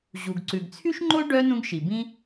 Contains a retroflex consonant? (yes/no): yes